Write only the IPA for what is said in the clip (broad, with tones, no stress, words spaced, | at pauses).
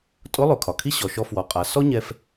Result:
tʼʊ˧˥lˠø˩kʰɒ˩ kʰi˥ ɕɔ˩ʃɔ˧ fwɔ˩˧qʼa˩˧ sɔ˥ɲɛ˧f